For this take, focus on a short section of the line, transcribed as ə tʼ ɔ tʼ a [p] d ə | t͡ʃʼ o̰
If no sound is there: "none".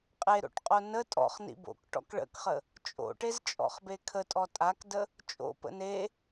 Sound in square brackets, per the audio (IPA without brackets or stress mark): k